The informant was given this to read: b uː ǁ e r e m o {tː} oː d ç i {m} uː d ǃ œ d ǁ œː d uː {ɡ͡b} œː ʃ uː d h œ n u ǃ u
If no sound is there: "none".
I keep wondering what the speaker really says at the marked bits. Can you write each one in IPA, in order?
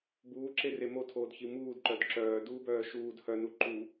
tʰ, m, b

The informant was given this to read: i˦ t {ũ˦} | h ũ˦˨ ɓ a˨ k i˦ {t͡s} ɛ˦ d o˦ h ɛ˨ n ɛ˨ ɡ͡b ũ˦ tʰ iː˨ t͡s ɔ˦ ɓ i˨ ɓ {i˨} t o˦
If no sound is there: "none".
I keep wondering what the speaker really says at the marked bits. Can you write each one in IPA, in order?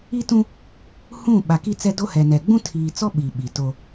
ũ˦, t͡s, i˨

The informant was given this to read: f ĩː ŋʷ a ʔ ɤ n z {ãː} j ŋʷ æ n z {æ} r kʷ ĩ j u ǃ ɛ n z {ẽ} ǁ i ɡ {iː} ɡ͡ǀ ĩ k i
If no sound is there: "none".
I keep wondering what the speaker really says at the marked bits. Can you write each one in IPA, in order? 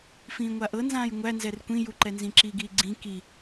ãː, ɛ, ĩ, iː

